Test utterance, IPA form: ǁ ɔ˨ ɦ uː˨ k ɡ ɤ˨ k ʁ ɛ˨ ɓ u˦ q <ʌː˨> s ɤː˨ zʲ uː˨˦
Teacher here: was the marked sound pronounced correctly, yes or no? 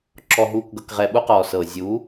no